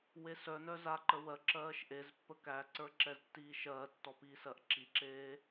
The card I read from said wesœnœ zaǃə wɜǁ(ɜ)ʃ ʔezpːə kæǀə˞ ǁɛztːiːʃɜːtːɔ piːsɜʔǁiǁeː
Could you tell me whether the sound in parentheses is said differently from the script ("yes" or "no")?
yes